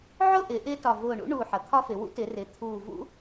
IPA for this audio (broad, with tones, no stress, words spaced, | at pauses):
ʕʊ˥˧ʔɪ˩˧ ʔɪː˥tɒ˧˩ vʊː˧˩ɳṵ˥ ɳuː˧˩ħʌ˩˧t̪ʰɒ˥fɪ˩˧ wṵ˥tɪ˩˧rɪː˩˧ t̪ʰuː˧˩vṵ˥